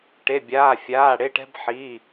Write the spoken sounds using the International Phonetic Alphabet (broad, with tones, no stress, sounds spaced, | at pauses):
ʈ e˩˧˩ bʲ aː˩˧˩ fʲ aː˩˧˩ ɽ e˩˧˩ ʈ ɛ̤˧ b ħ i˩˧˩